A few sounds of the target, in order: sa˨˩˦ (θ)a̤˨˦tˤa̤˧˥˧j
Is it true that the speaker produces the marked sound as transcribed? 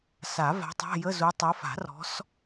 no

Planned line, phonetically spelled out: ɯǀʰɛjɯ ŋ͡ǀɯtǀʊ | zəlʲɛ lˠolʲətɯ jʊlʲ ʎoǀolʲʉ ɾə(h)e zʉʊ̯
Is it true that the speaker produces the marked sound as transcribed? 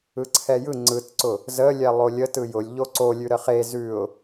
no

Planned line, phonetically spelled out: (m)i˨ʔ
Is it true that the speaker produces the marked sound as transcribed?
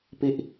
no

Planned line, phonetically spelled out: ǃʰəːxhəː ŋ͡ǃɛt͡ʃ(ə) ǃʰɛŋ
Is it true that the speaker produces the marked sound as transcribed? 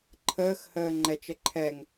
yes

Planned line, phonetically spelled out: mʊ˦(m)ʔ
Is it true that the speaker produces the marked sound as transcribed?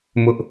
no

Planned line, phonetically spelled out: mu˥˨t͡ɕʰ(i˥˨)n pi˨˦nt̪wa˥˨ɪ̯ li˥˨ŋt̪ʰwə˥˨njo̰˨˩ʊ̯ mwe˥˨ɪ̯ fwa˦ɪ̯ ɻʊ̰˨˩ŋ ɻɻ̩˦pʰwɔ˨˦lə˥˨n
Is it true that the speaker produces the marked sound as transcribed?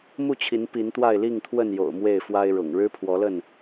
no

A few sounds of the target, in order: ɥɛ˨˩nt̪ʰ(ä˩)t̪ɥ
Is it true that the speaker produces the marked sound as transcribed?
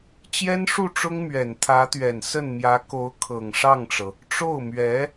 no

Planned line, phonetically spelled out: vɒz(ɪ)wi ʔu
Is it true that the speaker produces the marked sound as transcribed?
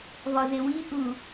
yes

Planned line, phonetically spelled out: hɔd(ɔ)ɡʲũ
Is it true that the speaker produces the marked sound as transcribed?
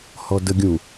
no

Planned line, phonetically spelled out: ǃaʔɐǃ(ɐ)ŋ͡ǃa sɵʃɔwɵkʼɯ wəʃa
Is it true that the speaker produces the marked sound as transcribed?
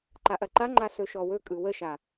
no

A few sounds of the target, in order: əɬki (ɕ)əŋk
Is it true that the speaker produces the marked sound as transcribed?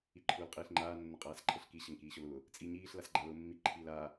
yes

